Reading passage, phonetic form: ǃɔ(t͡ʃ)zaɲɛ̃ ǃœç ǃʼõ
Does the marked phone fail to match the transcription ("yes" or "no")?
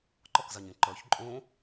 yes